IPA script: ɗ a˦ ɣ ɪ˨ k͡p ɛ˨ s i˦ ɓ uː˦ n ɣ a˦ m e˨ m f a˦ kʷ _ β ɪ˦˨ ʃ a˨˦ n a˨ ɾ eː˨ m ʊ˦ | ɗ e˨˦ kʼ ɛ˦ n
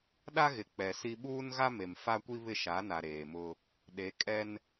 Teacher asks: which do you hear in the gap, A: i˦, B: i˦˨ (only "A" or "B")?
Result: A